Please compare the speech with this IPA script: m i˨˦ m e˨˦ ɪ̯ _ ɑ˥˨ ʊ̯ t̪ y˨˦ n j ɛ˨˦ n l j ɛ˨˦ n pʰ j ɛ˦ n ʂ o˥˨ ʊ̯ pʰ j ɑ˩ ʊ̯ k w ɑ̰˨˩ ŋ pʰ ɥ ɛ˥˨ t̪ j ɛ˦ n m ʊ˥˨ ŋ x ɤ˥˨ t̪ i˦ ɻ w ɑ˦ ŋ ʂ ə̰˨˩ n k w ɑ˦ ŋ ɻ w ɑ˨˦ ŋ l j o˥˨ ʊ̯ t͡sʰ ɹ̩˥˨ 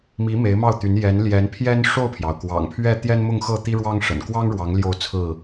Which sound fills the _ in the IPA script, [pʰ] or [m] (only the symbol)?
m